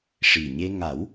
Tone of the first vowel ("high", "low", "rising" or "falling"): low